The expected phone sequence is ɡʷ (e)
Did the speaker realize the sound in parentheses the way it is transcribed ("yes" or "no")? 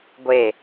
yes